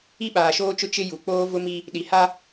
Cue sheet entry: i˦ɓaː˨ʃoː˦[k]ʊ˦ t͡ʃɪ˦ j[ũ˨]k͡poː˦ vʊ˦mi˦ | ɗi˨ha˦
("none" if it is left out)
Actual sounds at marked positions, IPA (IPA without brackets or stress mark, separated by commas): t͡ʃ, u˨